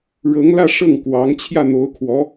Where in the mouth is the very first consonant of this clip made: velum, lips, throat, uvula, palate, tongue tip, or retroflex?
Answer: retroflex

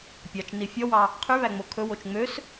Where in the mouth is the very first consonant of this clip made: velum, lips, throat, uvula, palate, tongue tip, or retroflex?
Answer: lips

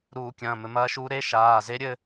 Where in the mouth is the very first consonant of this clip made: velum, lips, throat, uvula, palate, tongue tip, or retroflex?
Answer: tongue tip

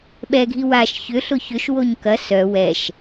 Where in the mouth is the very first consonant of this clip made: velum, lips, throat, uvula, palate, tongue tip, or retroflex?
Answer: lips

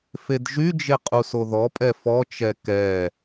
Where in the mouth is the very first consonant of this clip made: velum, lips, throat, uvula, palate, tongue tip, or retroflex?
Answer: lips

